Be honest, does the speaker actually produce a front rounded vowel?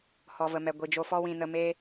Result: no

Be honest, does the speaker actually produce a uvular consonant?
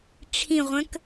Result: yes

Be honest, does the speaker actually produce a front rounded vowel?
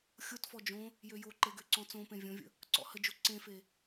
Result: yes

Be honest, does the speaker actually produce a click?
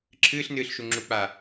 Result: yes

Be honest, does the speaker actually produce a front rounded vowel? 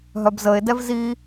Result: yes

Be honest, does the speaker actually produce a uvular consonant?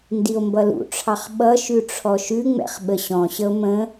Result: yes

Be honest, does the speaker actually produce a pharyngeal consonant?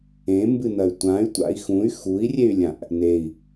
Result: no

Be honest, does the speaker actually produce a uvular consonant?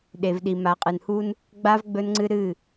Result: yes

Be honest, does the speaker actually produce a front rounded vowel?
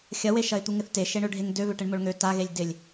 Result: yes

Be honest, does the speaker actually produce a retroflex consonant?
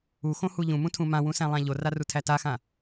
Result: no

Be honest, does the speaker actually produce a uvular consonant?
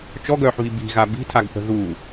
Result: no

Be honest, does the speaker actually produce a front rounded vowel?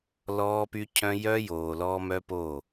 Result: yes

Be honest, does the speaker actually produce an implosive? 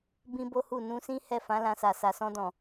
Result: no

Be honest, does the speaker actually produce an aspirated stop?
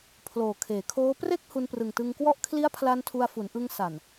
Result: yes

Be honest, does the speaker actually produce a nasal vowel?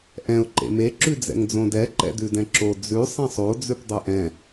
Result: yes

